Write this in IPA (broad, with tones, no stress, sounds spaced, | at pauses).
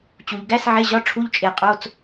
t͡ɕ u˩ ʎ ɡ æ˧˥˧ s ʕ e˧˥˧ ʑ ɒ˧˥˧ ʈ͡ʂʰ u˧˥˧ ʎ t͡ʃʼ e˧˩˧ qʼ o˧˥˧ t͡s